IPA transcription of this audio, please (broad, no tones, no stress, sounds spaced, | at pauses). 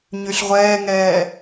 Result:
ɲ y ɬ ʁʷ ɛː ŋ ɛː